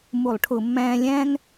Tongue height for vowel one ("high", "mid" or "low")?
high